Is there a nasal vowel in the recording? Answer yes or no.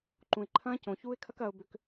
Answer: yes